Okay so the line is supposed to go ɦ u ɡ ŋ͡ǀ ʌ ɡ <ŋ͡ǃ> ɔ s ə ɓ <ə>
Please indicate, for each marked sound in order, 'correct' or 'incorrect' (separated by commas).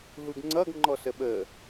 correct, correct